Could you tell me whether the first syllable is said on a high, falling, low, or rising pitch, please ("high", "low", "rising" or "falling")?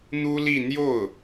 high